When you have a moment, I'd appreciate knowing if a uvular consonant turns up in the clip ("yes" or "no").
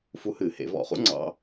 yes